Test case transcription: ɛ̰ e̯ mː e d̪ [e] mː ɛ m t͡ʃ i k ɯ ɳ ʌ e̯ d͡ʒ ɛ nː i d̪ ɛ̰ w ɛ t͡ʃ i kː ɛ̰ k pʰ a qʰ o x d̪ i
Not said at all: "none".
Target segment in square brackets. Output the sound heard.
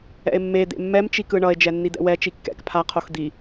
ḛ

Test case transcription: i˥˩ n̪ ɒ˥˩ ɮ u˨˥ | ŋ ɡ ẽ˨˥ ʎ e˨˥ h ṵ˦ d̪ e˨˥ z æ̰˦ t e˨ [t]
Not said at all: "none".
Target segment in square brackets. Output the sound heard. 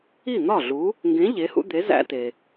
none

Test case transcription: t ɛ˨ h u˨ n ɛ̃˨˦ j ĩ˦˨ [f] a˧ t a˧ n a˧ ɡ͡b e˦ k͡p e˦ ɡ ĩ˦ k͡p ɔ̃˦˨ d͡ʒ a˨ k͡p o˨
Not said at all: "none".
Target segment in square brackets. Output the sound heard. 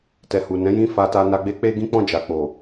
f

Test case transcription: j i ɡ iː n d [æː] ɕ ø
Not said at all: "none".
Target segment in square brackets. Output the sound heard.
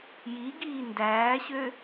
æː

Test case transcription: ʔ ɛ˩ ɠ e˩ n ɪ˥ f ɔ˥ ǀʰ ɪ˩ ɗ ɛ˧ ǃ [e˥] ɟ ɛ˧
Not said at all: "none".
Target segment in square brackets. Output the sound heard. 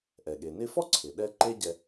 e˥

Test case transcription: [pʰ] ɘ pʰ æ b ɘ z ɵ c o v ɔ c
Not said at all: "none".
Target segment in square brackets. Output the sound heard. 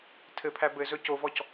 tʰ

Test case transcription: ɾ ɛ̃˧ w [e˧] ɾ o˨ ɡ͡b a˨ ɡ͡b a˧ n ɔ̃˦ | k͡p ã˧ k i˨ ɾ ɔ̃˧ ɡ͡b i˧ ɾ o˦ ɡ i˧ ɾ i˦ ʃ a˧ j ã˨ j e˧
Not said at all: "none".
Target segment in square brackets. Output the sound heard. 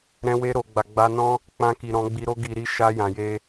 e˧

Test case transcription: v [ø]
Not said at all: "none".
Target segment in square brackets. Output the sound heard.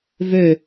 ø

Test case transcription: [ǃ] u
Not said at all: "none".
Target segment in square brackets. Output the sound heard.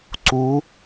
ǀ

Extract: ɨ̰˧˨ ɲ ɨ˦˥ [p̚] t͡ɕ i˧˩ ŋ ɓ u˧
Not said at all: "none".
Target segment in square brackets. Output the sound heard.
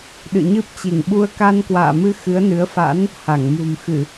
p̚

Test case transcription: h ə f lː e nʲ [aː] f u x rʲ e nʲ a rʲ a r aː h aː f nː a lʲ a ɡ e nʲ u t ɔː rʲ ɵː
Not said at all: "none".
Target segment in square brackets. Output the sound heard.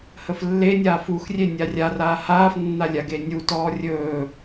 aː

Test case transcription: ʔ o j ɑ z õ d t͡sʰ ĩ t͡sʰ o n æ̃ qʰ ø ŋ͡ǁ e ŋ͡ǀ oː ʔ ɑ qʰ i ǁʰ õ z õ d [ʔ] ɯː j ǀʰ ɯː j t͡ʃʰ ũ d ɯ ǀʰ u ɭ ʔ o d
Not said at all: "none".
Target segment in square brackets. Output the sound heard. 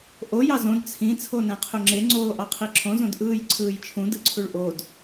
ʔ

